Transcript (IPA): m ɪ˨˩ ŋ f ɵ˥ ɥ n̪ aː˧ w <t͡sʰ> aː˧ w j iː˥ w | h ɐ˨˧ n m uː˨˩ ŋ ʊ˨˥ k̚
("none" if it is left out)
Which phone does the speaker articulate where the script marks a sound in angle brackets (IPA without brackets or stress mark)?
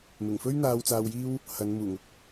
t͡s